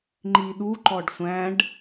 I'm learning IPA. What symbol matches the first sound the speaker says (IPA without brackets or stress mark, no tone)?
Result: ŋ͡ǃ